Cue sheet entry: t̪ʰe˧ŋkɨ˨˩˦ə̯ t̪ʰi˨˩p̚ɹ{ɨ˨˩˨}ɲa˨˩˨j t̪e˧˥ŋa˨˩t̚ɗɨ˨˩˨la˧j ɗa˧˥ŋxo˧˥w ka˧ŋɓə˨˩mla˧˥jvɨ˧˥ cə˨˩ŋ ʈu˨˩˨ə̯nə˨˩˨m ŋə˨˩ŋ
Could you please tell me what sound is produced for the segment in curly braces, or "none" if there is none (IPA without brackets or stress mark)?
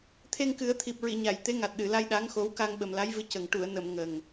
i˨˩˨